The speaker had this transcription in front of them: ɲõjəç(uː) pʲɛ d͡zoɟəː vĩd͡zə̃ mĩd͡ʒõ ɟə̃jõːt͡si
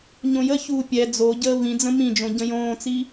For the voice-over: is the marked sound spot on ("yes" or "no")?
yes